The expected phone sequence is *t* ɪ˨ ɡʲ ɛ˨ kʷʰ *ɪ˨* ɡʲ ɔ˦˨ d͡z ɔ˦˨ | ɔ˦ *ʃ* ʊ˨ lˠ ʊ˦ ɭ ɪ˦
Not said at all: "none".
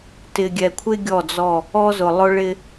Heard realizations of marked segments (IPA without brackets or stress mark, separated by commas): t, ɪ˦, z